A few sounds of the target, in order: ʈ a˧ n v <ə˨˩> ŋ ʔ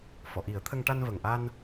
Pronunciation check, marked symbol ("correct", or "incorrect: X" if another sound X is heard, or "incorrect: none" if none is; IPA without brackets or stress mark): correct